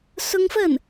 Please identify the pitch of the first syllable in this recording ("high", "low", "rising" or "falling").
high